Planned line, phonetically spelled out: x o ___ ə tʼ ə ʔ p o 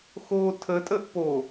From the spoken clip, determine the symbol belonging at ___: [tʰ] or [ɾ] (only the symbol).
tʰ